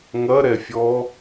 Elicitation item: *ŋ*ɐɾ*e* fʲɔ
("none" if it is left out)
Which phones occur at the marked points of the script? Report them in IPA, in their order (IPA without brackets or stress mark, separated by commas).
ŋ, ɛ